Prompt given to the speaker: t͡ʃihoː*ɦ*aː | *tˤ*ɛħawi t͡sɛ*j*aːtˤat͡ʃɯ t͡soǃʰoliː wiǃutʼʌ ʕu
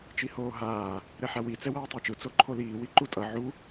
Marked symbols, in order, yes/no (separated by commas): yes, no, no